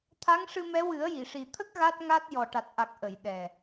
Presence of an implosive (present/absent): present